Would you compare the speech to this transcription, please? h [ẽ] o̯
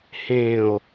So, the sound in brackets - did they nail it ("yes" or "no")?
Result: yes